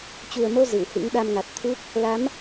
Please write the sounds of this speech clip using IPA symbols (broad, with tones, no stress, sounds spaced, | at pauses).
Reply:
t͡ɕ u˨˩ ə̯ m o˧ z ɨ˧˩ w h ɨ̰˧˥ ŋ ɗ a˧ m ŋ a˨˩ t̚ t̪ʰ u˦˥ k̚ | l a˨˦ m